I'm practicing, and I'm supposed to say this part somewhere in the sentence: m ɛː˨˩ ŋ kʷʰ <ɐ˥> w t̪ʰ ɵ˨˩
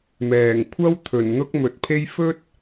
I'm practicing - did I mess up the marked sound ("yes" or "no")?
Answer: no